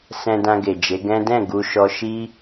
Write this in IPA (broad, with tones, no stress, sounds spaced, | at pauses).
s ɛ̃˧ d ã˧ ɡ e˨ d͡ʒ e˨˦ ɡ ɛ̃˦ d ɛ̃˦˨ ɡ u˧ ʃ ɔ˧ ʃ i˦